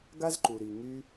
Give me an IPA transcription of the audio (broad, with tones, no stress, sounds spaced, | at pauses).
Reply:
ɡ a˦ z ǃ u˨ ɾ i˨ ŋ y˧